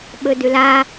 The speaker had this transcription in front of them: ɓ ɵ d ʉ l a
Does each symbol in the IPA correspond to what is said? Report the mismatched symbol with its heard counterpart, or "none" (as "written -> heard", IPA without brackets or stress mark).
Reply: none